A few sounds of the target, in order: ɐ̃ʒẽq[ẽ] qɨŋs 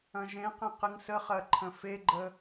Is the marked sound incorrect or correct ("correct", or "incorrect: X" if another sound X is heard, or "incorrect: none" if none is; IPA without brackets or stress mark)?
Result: correct